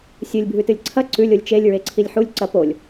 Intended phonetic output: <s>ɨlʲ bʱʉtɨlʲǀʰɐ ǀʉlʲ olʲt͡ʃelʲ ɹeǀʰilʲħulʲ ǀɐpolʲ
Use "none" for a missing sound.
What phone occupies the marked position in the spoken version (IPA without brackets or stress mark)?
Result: sʲ